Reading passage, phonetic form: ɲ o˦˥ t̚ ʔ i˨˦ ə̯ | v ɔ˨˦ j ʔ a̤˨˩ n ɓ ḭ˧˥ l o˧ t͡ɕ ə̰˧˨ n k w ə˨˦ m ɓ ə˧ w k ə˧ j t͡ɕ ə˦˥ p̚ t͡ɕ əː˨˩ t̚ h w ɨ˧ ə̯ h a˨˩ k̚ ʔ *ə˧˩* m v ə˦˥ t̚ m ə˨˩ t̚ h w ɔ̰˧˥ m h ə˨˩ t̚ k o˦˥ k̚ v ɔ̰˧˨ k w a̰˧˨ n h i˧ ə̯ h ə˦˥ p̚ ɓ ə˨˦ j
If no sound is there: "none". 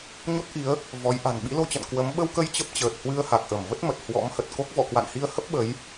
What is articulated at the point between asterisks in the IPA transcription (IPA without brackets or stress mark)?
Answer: ə˧˩